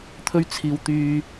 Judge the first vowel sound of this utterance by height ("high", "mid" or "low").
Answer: mid